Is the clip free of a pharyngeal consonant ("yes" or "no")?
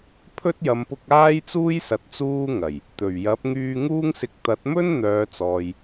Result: yes